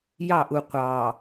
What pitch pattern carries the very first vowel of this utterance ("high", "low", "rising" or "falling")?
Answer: falling